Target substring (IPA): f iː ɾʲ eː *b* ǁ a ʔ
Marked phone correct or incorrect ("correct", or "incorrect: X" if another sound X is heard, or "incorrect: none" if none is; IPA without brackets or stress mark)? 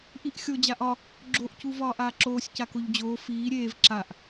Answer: incorrect: v